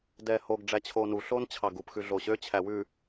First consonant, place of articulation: alveolar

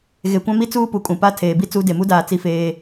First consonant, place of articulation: velar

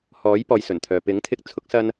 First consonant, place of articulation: glottal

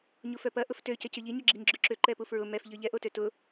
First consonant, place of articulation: palatal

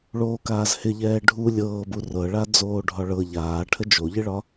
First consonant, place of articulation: retroflex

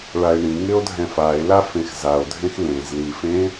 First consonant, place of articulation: retroflex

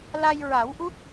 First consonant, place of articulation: alveolar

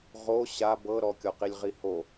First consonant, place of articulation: uvular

